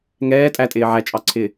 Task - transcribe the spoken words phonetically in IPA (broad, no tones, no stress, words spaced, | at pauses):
ŋɛː tʼætʼɪː ʕæt͡ʃʼɑǀʰɪː